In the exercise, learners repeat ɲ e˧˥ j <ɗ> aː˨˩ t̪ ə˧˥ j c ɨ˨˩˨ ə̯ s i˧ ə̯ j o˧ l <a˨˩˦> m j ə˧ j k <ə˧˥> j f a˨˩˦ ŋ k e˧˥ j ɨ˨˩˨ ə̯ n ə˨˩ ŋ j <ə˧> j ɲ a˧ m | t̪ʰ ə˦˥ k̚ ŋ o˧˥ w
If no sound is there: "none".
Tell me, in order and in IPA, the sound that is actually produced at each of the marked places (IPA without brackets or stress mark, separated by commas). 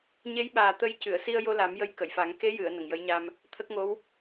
ɓ, a˨˩˦, ə˨˩˨, ə˧˥